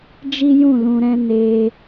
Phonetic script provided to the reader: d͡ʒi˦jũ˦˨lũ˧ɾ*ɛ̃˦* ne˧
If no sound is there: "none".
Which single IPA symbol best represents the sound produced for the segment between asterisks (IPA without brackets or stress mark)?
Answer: ɛ̃˦